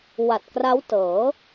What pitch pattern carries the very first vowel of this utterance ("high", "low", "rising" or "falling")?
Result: low